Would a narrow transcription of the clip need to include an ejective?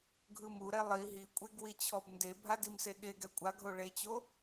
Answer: yes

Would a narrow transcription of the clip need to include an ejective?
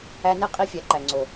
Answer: yes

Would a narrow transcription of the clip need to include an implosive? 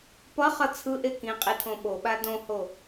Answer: yes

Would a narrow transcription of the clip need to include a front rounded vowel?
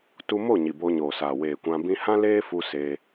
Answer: no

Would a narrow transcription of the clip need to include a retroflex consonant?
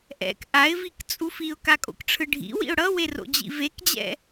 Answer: yes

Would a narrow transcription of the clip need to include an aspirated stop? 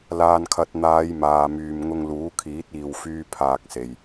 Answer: yes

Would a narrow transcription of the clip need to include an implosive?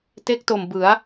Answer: no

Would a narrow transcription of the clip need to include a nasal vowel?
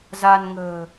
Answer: no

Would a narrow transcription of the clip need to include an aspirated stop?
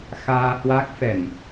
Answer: no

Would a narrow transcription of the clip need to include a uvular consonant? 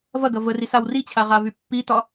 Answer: yes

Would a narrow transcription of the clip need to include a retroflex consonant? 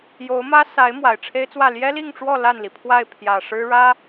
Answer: yes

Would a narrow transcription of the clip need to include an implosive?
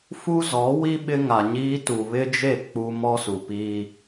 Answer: yes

